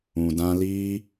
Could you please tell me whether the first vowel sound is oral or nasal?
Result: nasal